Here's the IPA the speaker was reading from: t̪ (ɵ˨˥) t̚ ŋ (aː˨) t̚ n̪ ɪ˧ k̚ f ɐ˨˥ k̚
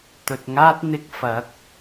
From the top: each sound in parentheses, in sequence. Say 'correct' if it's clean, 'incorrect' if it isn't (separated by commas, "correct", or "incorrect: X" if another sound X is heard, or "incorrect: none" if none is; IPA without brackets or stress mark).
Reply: incorrect: ɵ˨, incorrect: aː˥